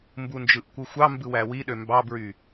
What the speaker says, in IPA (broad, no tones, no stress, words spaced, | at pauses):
mbund͡ʒɯʔkʷɯxʷɑ mbɯwæwiɗø mbɑbɹy